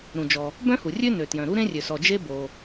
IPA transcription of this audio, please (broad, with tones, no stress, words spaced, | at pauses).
ɾũ˩d͡ʒɔ˩ | bœ̃˥hu˩rʲø˥nø˩ tjœ̃˩ɾu˥ɾẽ˥ rʲø˩sɔ˩d͡ʒe˥ bo˩